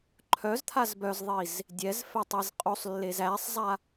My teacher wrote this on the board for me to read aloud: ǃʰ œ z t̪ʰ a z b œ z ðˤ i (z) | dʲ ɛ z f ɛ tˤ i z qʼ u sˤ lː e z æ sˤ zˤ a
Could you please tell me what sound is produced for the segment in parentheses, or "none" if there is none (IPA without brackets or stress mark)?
z